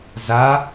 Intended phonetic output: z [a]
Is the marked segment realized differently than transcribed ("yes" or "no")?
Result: no